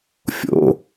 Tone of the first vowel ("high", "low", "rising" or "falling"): low